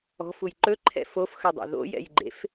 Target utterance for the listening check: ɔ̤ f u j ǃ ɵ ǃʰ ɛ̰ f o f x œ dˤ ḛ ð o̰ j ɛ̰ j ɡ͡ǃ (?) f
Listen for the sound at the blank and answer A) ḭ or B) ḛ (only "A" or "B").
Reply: B